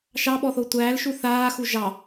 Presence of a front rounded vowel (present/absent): absent